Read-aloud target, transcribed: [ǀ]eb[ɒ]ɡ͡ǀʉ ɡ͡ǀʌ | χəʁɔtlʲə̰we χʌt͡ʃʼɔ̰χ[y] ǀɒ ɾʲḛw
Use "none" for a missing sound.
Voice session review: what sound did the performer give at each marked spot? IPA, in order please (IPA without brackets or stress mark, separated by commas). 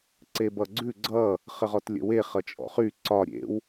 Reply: ǀ, ʌ, y